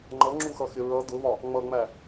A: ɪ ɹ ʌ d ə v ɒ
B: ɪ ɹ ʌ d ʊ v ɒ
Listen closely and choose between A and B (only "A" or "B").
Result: B